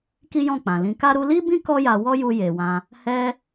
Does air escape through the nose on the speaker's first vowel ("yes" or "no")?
no